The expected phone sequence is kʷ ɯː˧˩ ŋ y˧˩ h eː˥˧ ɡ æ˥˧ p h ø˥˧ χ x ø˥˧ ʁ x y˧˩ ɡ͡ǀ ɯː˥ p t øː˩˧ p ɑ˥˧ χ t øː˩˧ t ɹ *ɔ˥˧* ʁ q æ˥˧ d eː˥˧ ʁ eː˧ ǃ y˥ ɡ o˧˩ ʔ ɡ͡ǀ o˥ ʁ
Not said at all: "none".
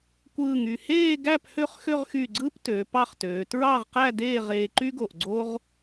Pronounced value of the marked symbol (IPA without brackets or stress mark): ɑ˥˧